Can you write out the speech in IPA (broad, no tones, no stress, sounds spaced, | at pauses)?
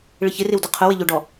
ɭ ɪ ç ɪ r ɪ w d ʊ qʰ ʊ w ɪ ʎ ʊ ɖ ɔ